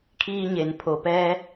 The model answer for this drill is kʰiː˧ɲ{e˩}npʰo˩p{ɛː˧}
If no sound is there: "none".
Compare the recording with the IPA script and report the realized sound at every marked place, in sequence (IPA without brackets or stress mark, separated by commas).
e˩, ɛː˧